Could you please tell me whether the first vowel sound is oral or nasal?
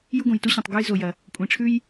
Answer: oral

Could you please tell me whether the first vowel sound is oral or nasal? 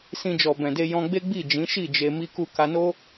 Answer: nasal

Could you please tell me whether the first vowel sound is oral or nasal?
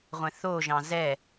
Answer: nasal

